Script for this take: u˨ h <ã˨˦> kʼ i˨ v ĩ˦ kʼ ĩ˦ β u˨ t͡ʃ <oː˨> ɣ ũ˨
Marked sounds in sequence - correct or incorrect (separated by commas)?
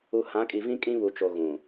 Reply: correct, incorrect